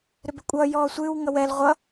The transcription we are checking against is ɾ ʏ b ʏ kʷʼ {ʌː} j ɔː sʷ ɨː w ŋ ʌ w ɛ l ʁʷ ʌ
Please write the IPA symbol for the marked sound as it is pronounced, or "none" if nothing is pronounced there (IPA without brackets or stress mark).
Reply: ʌː